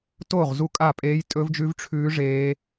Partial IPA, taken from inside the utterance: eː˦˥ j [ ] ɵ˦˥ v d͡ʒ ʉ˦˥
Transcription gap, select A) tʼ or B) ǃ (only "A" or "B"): A